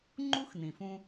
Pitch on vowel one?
high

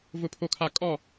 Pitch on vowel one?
low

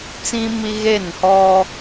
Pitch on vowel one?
high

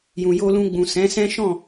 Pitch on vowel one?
low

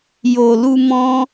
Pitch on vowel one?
low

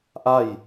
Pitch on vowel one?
falling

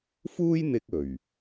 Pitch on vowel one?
high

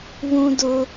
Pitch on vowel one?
high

